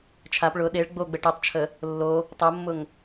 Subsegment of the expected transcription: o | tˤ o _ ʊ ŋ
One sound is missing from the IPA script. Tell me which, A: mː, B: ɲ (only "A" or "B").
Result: A